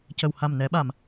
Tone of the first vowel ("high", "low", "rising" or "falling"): low